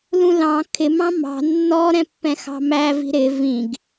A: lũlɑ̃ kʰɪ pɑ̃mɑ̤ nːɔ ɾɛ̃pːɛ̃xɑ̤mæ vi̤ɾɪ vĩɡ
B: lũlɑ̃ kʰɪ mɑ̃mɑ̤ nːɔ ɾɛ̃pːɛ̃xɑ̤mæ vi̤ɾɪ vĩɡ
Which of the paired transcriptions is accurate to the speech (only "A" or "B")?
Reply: B